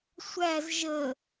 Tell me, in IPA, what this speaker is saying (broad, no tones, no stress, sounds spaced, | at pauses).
sʷ æ z ʒ ə